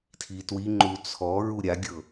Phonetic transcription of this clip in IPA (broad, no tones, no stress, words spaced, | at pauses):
tʰitwiŋ͡ǃu t͡sʰɔ ɹuɾʲaɡʲɤ